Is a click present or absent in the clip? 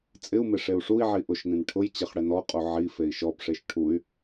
absent